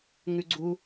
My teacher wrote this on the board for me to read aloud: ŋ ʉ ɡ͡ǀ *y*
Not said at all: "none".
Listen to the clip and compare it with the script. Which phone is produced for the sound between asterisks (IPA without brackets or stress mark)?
u